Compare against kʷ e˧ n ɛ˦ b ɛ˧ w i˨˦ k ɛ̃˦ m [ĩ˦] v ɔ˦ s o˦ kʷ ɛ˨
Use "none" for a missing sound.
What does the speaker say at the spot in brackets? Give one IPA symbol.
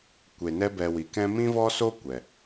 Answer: ĩ˦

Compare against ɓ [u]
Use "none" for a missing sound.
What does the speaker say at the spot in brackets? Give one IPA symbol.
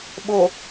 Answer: o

